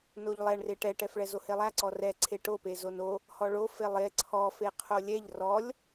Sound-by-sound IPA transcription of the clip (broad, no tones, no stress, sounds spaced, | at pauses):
n o ʎ lˠ ɛ ɳ r e ʈ ɛ ʈ ɛ f ɭ ɛ z o h e lˠ æ ǀ ɔ r ɛ ǀʰ e ʈ o p e z o n o | h ɔ ɭ o f e lˠ e ǀʰ ɔ f e qʰ o lʲ ɛ ʎ r ɔ lʲ